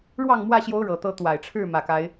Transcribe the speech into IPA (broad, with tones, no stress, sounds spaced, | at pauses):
ɻ w ɑ˥˨ ŋ m w ä˥˨ ɕ j o˦ ʊ̯ ɻ ɤ˨˩ t̪ ɤ˦ t̪ w a˨˩ ɪ̯ ʈ͡ʂʰ ɻ̩˥˨ m ä˨˩ k a˨˦ ɪ̯